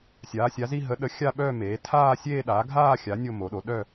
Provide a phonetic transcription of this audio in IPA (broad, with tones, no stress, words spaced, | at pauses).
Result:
sʲaː˩˥sʲa˩˥zi˥˧ ɦə˩˥ɗə˩˥ xʲa˥˧ɓœ˥˧meː˩˥ tʰaː˥˧sʲeː˥˧ ɗaː˩˥ɡʱaː˥˧xʲa˩˥ nʲo˥˧mo˩˥ɗo˩˥ ɗœ˥˧